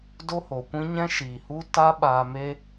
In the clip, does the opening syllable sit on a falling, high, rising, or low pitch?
high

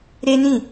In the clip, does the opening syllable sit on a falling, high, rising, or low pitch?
high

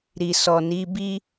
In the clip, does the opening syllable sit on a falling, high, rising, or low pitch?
low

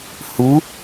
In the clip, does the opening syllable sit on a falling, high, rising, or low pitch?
rising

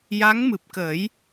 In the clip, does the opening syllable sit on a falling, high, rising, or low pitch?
rising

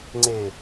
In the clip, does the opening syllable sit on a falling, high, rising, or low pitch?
low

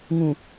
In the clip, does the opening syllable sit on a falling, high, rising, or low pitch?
low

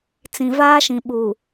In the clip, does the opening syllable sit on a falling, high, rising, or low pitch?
low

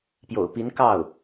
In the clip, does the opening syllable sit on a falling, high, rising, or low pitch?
low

